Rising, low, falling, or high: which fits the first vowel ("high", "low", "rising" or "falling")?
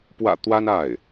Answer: low